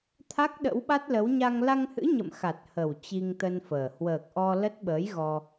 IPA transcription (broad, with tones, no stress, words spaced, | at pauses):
t̪ʰa˦˥k̚ɗə̰˧˥wɓa˦˥t̚lə˨˦w ɲa˧ŋ la˧ŋhɨ̰˧˥ ɲə̰˧˨mxa˨˩t̚hə˨˩w t͡ɕi˧ŋt̪ə˧nfəː˨˩ hwəː˨˩k̚ʔɔ˧ lə˦˥t̚ ɓəː˨˦j ɣɔ˧